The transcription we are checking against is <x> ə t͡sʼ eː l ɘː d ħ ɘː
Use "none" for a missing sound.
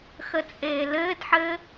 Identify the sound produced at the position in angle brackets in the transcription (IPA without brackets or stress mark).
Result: x